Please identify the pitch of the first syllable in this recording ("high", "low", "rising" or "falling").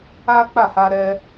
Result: high